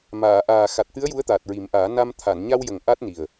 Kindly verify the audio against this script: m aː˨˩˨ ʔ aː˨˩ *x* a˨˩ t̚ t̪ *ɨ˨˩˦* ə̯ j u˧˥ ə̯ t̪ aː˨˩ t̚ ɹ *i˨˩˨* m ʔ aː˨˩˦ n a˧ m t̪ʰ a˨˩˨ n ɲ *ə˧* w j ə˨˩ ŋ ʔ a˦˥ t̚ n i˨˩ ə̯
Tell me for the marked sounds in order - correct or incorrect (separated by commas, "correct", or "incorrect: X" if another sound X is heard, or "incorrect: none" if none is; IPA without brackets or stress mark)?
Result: correct, incorrect: ɨ˧˥, incorrect: i˨˩˦, incorrect: a˧